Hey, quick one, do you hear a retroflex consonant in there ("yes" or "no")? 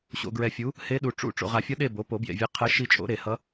yes